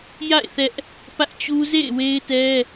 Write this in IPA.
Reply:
j a̰˦˨ ɪ̯ θ ɛ˦ ʔ | p ä˦ ʔ t͡ɕ u˦ z ḛ˦˨ ɪ̯ w e˦ ɪ̯ t ɛ˦

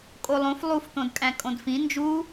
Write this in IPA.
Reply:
kʼ o lˠ õ f lˠ u f t̪ õ d kʼ æ̃ kʼ õ d f ĩ n d͡ʒ u

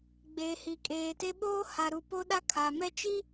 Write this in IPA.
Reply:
ɡ͡b eː˨ h i˨ kʼ eː˨ t e˦ ɓ oː˦ h a˨ ɾ u˨ p o˦ ɗ a˦ kʰ a˨ m ɛ˦ t͡ʃ i˦

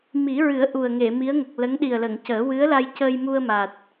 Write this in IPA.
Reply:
m i˨˩˦ ɹ ɨ˨˩˦ ə̯ ʔ u˨˩ ə̯ ŋ e˨˩˨ m i˧˥ ə̯ ŋ ə˨˩ k̚ l ə˧˥ ŋ ɗ i˨˩ ə̯ l ə˨˩˨ ŋ c əː˨˩˦ w ɨ˧˥ ə̯ l a˧ j c ə˧ j m u˧ ə̯ m a˨˩ t̚

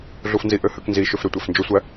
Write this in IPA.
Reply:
ɮ u f n z i ʔ ø h ø k n z i ʃ ø f ɾ ø tʷ æ f n d͡ʒ o sʷ æ

